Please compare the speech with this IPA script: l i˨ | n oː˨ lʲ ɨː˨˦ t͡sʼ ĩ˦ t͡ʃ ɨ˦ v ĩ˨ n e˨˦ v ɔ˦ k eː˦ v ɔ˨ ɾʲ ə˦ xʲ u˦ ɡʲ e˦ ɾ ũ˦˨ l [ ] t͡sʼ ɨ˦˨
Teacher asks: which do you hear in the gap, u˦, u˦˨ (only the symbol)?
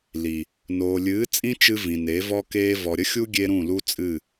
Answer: u˦